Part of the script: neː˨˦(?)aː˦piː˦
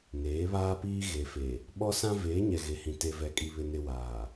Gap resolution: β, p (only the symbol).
β